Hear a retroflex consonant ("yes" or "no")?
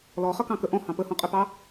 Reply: no